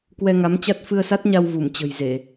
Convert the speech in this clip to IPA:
k w ɛ˧ ŋ a˨˦ m t͡ɕ a˦˥ t̚ f ɨ˧ ə̯ s a˦˥ t̚ ɲ a˧ w v u˧˩ m t͡ɕ ə̤˨˩ j z e˧˩˨

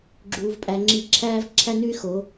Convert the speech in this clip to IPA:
ɡ͡ǁ uː˧ v pʼ æ˧ ŋ͡ǁ i˦˨ ǁʰ æː˦ v ǁʰ æ˦ n ʉ˦ y̯ x o˨˦

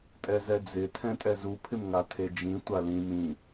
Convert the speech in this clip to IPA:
tʼ ɛ z ɛ d͡z ɪ tʰ ɛ̃ tʼ ɛ z u pʰ ɪ m ŋ a tʰ e d͡ʒ ĩ tʷ a l ĩ m ĩ

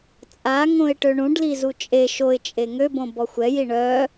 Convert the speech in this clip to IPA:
t͡sʼ a ŋ õ ɪ̯ ʈ ø ɳ ũ ɖ l i z u t͡ʃʼ e ʃ o ɪ̯ t͡ʃʼ e ŋ ø b õ b ɔ xʷ ɛ j i ɳ œ

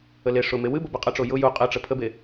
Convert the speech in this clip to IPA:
ə l e ʂ ʊ m e w ɨ b o b ɘ qʼ ə ʈ͡ʂ o j ʊ j u qʼ ɘ ʈ͡ʂ ə pʰ ə b e

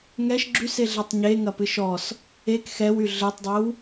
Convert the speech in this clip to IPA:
ŋ ɛ ʃ ɡ͡ǁ y s e ɮ ɛ tˤ ɲ e ŋ ɐ p ɨ ʃ ɔ s | e k x ɛ w y ɮ ɘ tˤ dˤ ɘ w

